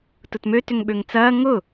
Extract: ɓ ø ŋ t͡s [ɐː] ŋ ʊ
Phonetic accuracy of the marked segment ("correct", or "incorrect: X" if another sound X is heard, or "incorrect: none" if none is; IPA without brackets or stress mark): correct